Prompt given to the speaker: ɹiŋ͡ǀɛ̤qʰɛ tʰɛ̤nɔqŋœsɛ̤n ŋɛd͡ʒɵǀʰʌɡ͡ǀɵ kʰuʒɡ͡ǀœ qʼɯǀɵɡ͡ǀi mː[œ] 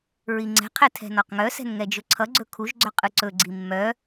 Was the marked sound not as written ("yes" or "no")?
no